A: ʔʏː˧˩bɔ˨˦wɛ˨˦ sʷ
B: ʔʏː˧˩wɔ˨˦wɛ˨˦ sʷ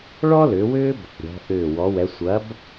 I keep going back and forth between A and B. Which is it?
B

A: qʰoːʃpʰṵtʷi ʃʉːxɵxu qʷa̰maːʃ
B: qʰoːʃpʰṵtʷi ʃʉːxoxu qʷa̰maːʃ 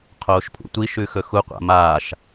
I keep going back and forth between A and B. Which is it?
A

